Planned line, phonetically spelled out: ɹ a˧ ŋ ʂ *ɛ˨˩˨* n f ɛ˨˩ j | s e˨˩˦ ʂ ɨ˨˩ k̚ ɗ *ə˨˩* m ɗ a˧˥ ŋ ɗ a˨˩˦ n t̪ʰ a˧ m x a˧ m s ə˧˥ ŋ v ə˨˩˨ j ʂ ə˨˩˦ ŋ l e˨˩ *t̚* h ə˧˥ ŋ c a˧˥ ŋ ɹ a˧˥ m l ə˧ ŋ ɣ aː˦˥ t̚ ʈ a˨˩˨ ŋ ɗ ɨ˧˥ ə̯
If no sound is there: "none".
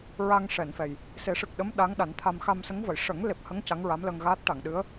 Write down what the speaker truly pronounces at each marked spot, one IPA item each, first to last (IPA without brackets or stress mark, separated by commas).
ɛ˨˩˨, ə˧˥, p̚